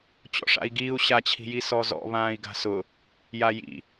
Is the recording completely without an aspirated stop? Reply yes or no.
no